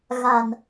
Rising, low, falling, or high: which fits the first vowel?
low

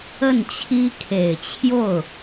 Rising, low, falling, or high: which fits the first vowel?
falling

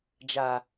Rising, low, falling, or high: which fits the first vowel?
low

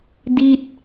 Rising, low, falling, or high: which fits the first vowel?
falling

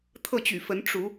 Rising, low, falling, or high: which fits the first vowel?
falling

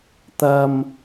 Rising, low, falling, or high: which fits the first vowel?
low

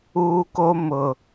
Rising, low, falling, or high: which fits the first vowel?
high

